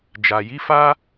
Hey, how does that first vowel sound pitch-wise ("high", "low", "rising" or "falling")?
low